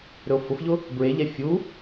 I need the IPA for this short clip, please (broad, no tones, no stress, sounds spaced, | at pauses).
ɾ ɵ o̯ f ʊ f ʎ ʊ | b ɹ e ʎ ɛ fʲ u